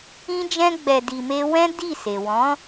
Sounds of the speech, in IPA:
ĩ˦d͡ʒɛ̃˦ɡ͡bɛ˧ di˧me˦ wɛ̃˦ di˦˨ se˨ wɔ̃˨˦

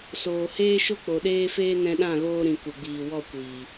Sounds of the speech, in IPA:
soː˨heː˦ʃo˦ k͡po˨ɗeː˦feː˦ nɛ̃˧ɗã˦˨ɣoː˧ ɾĩ˨ ku˨ɡ͡biː˨wɔ˦˨kʷiː˨

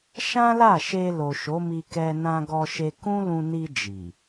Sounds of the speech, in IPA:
ʃã˦la˦˨ʃe˧ lo˨ʃo˨˦mi˧kɛ˧ nã˧ɡɔ˧ʃe˧ kũ˦lũ˧ni˧ d͡ʒi˨

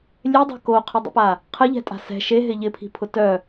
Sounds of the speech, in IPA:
lʲedˤɛ̤ koqʰɪdˤə̰pa | qʰəʎɛ̤tʼa̤ sɛ̤ ʃeɦɪ ʎɪpʰi̤pʰʊ tœ

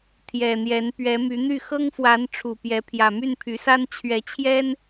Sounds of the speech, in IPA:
t̪ʰjɛ˨˩n̪jɛ˨˦n pɥɛ˨˦my˨˦n̪y˥˨ xɤ˦ŋfwa˨˦n ʈ͡ʂʰu˨˩pjɛ˨˦ pʰjä˨˩my˥˨npʰy˨˦sa˦n t͡ɕʰɥɛ˨˦t͡ɕʰjɛ˦n

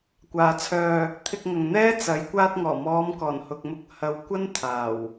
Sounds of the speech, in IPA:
kʷaː˨t͡sʰœː˧ | t̪ʰɪ˧k̚ŋɐ˨ŋ n̪ɛː˥t͡sɐ˨˧j kʷaː˧t̚ŋɔː˨˩mɔː˨˧mkɔː˨˩n hʊ˨k̚mʊ˧k̚ hɐ˨˧wkʷɐ˥nt̪ʰaː˨˩w

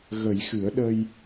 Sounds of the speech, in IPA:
ɣə˨˩˦jxɨ˨˩˦ə̯ ɗə˧j

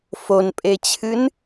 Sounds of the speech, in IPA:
fonpʼet͡ɕʰɨn

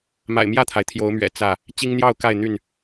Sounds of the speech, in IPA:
ma̰˨˩ɪ̯mjä˥˨t̪ʰa˩ɪ̯ t̪ʰjo˨˦ʊ̯mɥɛ̰˨˩ t͡sä˥˨ | t͡ɕi˦ŋn̪jɑ˥˨ʊ̯ka˥˨ɪ̯ n̪y˥˨n

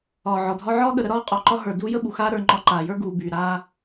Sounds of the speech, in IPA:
ɒː˨ʕɒ˨dʱɒ˦ ʕɒː˦ɠə˨ɾə˦ ɾɒː˦qʼɒ˨ǃɒ˦ ɦə˞˨ duː˦jə˦ɓu˨xaː˦ ɾə˞˦ ŋ͡ǃɒ˦ǃaː˨ jə˞˦ɡuː˨ byː˨ɾaː˦

